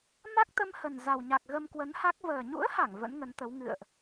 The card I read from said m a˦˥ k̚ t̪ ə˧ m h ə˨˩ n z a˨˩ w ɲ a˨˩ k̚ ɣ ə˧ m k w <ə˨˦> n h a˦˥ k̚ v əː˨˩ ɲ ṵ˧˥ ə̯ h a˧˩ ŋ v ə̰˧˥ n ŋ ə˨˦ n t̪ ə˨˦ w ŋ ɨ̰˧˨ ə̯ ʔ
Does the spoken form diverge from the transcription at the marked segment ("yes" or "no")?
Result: no